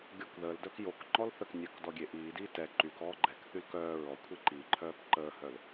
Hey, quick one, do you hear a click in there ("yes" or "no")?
yes